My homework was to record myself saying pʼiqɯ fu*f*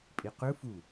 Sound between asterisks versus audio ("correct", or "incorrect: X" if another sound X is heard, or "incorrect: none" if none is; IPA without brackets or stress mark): incorrect: none